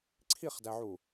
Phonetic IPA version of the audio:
ǀʰ i χ d æ ʕ u

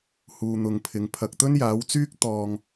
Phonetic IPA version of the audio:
h uː˨ n̪ ʊ˨ ŋ pʰ ɪ˨ ŋ pʰ ɐ˨ k̚ t̪ ɵ˥ n j aː˨˥ w t͡s yː˥ k̚ t̪ ɔː˧ ŋ

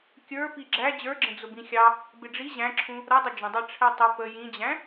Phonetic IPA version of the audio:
kʲ ə˞ p i ɡ͡ǁ æ d͡ʑ ə˞ ɡ͡ǁ ə̃ d͡z ʊ b ĩ xʲ ɑ | b ɪ ɖ͡ʐ i ʑ æ̃ ǁʰ ũ | ɾ ʌ dˤ ə d͡ʒ ə̃ dˤ ɑ ʈ͡ʂʰ ɛ tˤ ə p ə j ĩ d͡ʑ æ̃

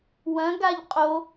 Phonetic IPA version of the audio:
w ɐ̃ ɡ a ʎ qʼ o

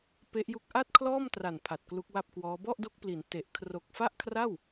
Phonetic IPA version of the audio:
p e˦˥ ʔ j u˦˥ k̚ ʔ a˥˩ t̚ kʰ l ɔː˥˩ m t r a˨˩ n pʰ a˨˩ t̚ k l u˦˥ k̚ w a˥˩ p̚ k w ɔː˦˥ b ɔ˥˩ ʔ d o˦˥ k̚ p l i˩˦ n t e˨˩ ʔ kʰ r o˨˩ k̚ f a˥˩ ʔ kʰ r a˥˩ w

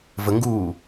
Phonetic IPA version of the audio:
v ə ŋ ɡ uː

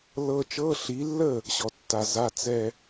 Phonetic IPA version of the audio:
l ɤ˥ t͡ʃ ɤ˧˥˧ ɬ i˨˦ lː ə˥˩ | ɕ ɔ˨ tː a˨ z a˧˥˧ t͡s ɛ˥˧

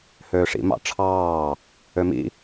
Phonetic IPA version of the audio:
h øː ʂ ḭ m ɑ̰ ʈ͡ʂʰ ɑː | ø m ḭ

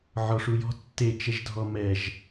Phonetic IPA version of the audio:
ʕ ɔ ʂ u j ɔ̤ tː e t͡ʃ ɛ ʒ dʱ ɔ m ɛ ʒ

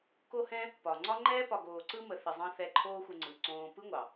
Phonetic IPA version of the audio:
k o˧ h ɛ̃˧ | p ɒ˨ ŋ͡ǀ ɒ˦ ŋ͡ǃ ɛː˦ p ɒ˨ ɡ oː˨ ǀ ɯ˧ m ə˨ θ ə˨ zˤ ɑ̃˧ θ ɛ˧ ǃʰ oː˦ xʷ ə˧ ŋ͡ǀ ɯ˨ ǀ õː˧ p ɯ˦ ŋʷ ɑ˨

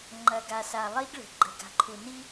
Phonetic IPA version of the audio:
ŋ͡ǃ ɐ˨ ɡ a˨ s a˨ lˠ i˦ ɡ ɭ ə̤˨ ɡ͡ǃ ə̤˨ ɡ a̤˨ ǃʰ u˨ n i˦

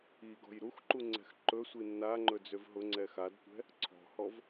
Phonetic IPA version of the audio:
i ɡ ɔ̤ j ɾ u x ǃ u ŋ͡ǀ ɛ̤ x ǃ ɵ sʷ i nː a ŋ͡ǃ ɵ d͡z ø v ɦ ʊ ŋ͡ǀ ɛ x a d tʷ ɛ̤ | ǀʰ ɔ̤ h ɔ v

